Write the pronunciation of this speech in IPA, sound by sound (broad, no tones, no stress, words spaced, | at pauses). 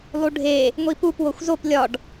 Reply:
lˠuɖʱe | ŋʷipup woxʷzop lʲɒɖ